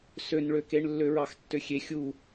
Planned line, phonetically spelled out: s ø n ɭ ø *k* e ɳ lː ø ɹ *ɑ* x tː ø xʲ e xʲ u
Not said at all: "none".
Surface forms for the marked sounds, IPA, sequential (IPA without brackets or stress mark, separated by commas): k, ɑ